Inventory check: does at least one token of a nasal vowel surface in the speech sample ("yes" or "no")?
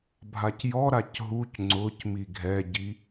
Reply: no